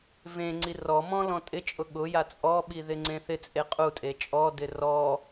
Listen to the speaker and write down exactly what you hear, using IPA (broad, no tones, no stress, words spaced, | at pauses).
vẽŋ͡ǀi rɔmɔ̃ lɔ̃tʼɪt͡ʃʼʊ ɠʊja t͡sʼɔɓi ðɪŋ͡ǀẽθɪt͡sʼe qʼutʼe t͡ʃʼɔdɪ rɔ